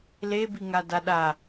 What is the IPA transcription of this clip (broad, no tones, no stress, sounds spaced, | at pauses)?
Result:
l e b i ŋ a d a ɗ a